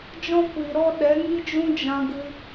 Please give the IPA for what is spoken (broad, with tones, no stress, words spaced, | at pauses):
d͡ʒɔ̃˦kʷi˨ ɾɔ˦ ɗɛ˨˦ŋi˦d͡ʒũ˦d͡ʒã˧ ɡɨ˧